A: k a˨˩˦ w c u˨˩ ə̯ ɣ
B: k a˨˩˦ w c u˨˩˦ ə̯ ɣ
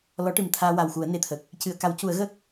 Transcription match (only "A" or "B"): B